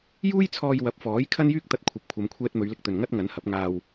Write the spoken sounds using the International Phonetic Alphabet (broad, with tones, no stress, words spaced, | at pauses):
juː˥jt͡sʰɔː˧j wɐ˨˥p̚fɔː˨˥j kʰɐ˥njyː˥k̚t̪ɐ˧t̚ kʷʰɐ˨p̚kʷʰɐ˨˧mkʷʰɛː˧t̚ mɵ˨˧ɥlɪ˧k̚t̪ɵ˨n ŋɐ˥t̚ŋɐ˨˥nhɐ˨˥p̚ ŋaː˧w